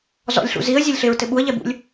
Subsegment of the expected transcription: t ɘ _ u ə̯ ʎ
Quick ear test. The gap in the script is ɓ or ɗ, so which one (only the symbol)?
ɓ